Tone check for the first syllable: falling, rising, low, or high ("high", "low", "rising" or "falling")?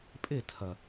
falling